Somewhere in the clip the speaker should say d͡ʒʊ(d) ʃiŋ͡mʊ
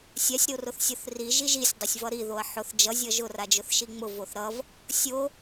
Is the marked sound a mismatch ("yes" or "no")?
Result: yes